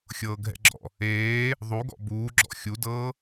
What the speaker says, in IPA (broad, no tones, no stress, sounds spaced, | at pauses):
xʲ ɤː ɡʱ ɛ̰ ɡ͡ǁ ɔ̰ | eː | ðˤ u ɡ ɔ̰ b uː ɡ͡ǁ ɔ̰ xʲ u d ɤː